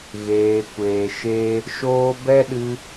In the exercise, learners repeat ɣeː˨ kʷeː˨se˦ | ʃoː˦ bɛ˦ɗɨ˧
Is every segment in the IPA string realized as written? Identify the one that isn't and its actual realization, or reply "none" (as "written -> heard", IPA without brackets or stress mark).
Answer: s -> ʃ